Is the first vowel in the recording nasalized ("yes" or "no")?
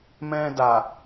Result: yes